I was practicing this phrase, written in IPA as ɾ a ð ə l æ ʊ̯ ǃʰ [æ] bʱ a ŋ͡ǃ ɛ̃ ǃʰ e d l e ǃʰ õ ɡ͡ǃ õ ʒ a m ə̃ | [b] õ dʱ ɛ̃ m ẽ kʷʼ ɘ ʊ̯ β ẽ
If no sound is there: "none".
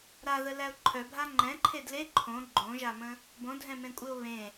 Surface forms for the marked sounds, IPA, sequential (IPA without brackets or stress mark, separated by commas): œ, b